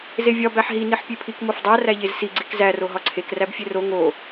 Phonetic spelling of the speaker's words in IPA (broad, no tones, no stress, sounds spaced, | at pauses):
z e vʲ ɒ b æ ħ ɦ i n i ħ pʲ e pʰ i k m o f dˤ æ r æ ʎ e z s i ɡ͡ǀ i k z æ r o ɦ ɒ ǀʰ e k r æ b fʲ e r o ŋ o